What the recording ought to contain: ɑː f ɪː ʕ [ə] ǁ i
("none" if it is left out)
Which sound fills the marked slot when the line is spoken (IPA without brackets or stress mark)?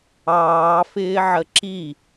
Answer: ə